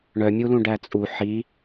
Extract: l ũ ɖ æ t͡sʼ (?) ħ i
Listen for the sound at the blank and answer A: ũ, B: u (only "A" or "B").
B